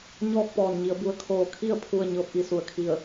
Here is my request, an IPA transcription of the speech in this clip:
ɲɔː˥˨k̚pɔː˧˩nɲi˩˧ə̯ bu˩˧ə̯kʰoː˧˩kʰi˥˨ə̯ pʰu˥˨ə̯ ɲɤː˧˥p̚ʔi˩su˧˩ə̯kʰi˧˩ə̯

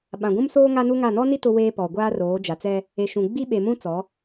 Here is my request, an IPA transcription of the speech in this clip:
ɓã˨ɡʷũ˦msoː˦ ŋa˦nu˦ŋa˦˨ nɔ˦ni˦ tʊ˦weː˦ pɔ˨ɡʷaː˦roː˨˦ d͡ʒa˨t͡sɛ˦ | e˨ʃũ˨ ɡ͡bi˦ɓe˨mũ˦ t͡sɔ˨˦

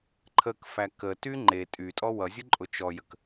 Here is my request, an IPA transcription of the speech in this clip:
ǃʰəkfæ kəty ŋ͡ǃe tʼytʼɔ wʌzʲʊǃʼʊ t͡ʃɔjək

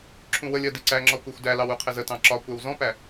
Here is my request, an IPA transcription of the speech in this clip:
ǁʰũwəlʲɜ diǀæŋ͡ǁɒ kʷɛxʷdælɑw uqʰɪzətɑ̃ ǁɒ kʷæwzɔ̃pæ

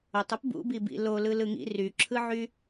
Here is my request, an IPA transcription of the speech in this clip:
otˤɯp bṵbibḭ lolɯ lɯŋḭ ryǁʰɯʕy

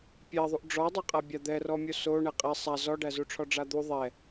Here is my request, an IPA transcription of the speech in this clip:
pʲɛðˤuʔ ɖ͡ʐɔdˤaqʼa bʲad̪ɛrɔmʲo so ɳɛqʼɛ sˤa zɔɖæzuʈ͡ʂʰɔ ɖ͡ʐad̪u ðˤɛ

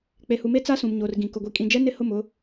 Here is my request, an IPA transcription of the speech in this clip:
k͡pe˨hu˨me˦ t͡sa˦sũ˨mɲoː˨r ɡĩ˨ kʊ˨ɡʷi˨kʼĩ˨d͡ʒɛ˦ nɪ˦hʊ˦˨mʊ˦

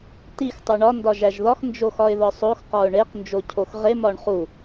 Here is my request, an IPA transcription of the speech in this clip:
tix tˤuɳɒ ndɒʒæʒðɒx nd͡ʒoxɒɪ̯ðɒsˤox qɒʊ̯ɳeq nd͡ʒocʰoxʁe mɒɳχu

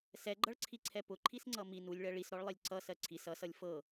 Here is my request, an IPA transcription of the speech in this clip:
sɛɡ͡ǃʌɭǀʰiǀʰɛ pʊǃʰisŋ͡ǀʌ mi nulʲɭɜ ɭisɾɔɭlˠilʲ ǀʌsɜ ǀʰis ʌsʌlʲ fɤ

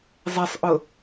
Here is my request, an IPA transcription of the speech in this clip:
zˤesˤʔʊ

